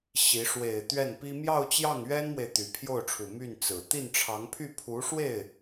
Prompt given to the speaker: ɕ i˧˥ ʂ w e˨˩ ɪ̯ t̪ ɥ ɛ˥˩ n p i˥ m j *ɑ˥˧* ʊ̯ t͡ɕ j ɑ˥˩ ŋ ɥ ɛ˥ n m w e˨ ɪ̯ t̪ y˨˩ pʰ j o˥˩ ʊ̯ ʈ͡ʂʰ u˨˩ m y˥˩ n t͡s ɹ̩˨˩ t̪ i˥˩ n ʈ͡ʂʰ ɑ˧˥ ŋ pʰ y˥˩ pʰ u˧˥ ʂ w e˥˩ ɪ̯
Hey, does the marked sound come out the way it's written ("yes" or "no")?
yes